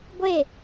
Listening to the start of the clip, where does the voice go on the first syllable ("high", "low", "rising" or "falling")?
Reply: falling